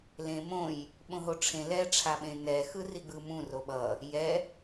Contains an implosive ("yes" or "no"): yes